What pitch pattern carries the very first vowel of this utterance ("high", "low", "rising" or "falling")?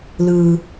low